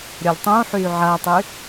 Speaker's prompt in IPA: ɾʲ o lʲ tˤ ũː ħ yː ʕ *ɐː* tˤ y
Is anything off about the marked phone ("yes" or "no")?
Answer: no